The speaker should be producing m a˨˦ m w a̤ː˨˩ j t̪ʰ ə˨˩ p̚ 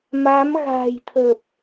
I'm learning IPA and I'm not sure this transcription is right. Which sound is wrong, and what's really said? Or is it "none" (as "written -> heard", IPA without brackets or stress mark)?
w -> ɣ